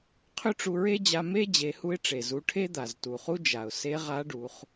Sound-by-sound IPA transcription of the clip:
qʰ ʏ˥ ʈ͡ʂ u˧ ɹ e˥ d͡ʑ a˧ m e˥ d͡ʑ e˩˧ h u˧ ɪ̯ ʈ͡ʂ e˩ z u˩˧ ʈʰ e˥ d̪ a˩ z t u˩ χ u˥ d͡ʒ a˩ ʊ̯ s e˧˥ ʁ a˧˥ ɖ u˩˧ χ

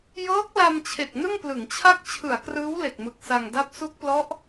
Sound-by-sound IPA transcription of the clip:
j ɤː˦˥ k̚ l a˧ m t͡ɕʰ e˨˩ k̚ n ɯ˥˩ ŋ p l ɯ˩˦ ŋ t͡ɕʰ a˥˩ k̚ t͡ɕʰ ɯ˩˦ a̯ k r ɯː˦˥ w l e˨˩ k̚ m ɯ˨˩ k̚ s a˧ ŋ d a˦˥ p̚ s u˦˥ k̚ p l ɔ˦˥ ʔ

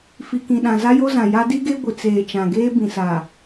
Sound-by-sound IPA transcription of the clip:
f i˨ k ĩ˨ ɗ ã˨ z a˦ j o˦ z ã˨ j a˦ d i˦ ɡ e˦ ɡʷ ɪ˨ t͡s eː˨ t͡ʃ ã˨ ɡ eː˦ b ĩ˨ s a˨

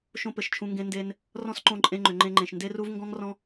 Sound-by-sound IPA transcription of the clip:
ʃ õ˦ p ɘ˨ ʃ t͡ʃʰ ũ˧ ŋ ɡ ẽ˦ n d e˧ n | r ɔ̃˦ s ǃ õ˧ ǃʼ ẽ˧ ŋ͡ǃ ʏ˨ ŋ͡ǃ ẽ˧ ŋ͡ǃ ẽ˨ ʃ n d e˦ r u˦ v ŋ ɡ ɔ̃˦ ŋ r ɔ̃˦

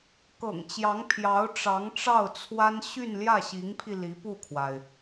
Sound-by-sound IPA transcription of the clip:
k ɤ̰˨˩ ŋ t͡ɕ j ɑ˧˥ ŋ pʰ j ɑ˧˥ ʊ̯ ʈ͡ʂ ɑ˧˥ ŋ ʈ͡ʂ ɑ˥˩ ʊ̯ t͡sʰ w a˥ n ɕ y˥˧ n l j ä˥˩ ɕ i˧˥ ŋ pʰ i˧ l i˧˥ p u˥˩ kʰ w a˩ ɪ̯

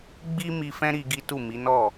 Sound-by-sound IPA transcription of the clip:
ɡ͡b i˦ m i˧ f ɛ̃˦ ɾ i˧ ɡ i˦ t u˦˨ m i˨˦ n ɔ˦˨

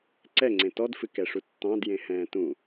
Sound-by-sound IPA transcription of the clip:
ǀ ɛ ŋ͡ǀ ẽ t ɔ d f ɨ k ɛ ʂ u tː ɑ̃ d j ẽ h ɛ̃ː t ũ

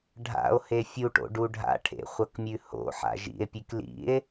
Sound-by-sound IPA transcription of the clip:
ɖʱ a̰ o̯ h e fʲ u ʈ o̰ ɖ u ɖʱ a̰ ʈʰ ḛ χʷ ɐ k mʲ ʉ h o̰ ħ a̰ ʒ ḭ e̯ pʲ ʉ k l ḭ e̯

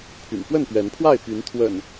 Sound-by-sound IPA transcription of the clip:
pʰ y̰˨˩ n p w ə˥˨ n p ɥ ɛ˨˦ n pʰ w a˥˨ ɪ̯ p y˨˦ n t̪ʰ w ə̰˨˩ n

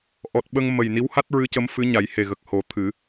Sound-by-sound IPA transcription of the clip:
ʔ ɔ˨˩ t̚ ɓ ə˧ ŋ m ə˨˩ j n i˧˥ w h a˦˥ t̚ ɹ ɨ˧˥ c ə˧˥ m f ɨ˧˥ ɲ a˨˩˦ j h e˨˩ ɣ ə˨˩ k̚ h o˨˩˦ t̪ʰ ɨ˨˩˦

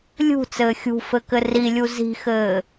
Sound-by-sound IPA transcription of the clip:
lʲ ṳ t͡s ɘː xʲ ṳ f ɘ k ɘ r i lʲ u z i̤ x ɘː

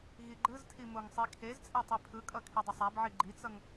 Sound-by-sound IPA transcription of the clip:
ɣ i ɡ͡ǃ ɯ z tʰ i m o ŋ sˤ i kʰ e z t͡sʼ ɛ tˤ e pʰ ɯ kʼ ʌ kʰ i dˤ e sˤ a b ʕ i ɡ͡ǃ i t͡s ʌ ŋ

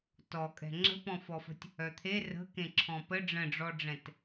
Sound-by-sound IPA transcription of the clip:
t ɔ kʼ ɛ̤ ŋ͡ǁ ə̤ p ɔ̃ f ɔ f ə̤ tʲ | œ t̪ʰ e r ə̤ k ẽ ǁʰ ɔ̃ p ə ɖ͡ʐ ə̃ ɖ͡ʐ ɔ ɖ͡ʐ ɛ̃ t

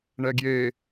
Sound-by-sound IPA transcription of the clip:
ɳ ɛ ɡ j e

